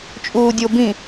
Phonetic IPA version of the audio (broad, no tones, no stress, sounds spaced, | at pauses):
t͡ʃʼ uː dʲ o b ĩ